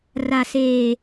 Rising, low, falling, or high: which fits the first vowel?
low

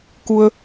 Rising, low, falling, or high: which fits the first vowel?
low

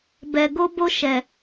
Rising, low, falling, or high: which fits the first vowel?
low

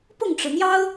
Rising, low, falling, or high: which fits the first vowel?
falling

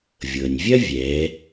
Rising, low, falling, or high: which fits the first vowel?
low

